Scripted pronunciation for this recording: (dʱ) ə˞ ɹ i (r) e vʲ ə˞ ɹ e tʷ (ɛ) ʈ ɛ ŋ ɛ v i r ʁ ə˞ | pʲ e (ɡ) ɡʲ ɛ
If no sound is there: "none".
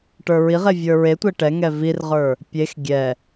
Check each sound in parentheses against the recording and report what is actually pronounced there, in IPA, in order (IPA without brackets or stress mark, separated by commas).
ʈ, ʁ, ɛ, x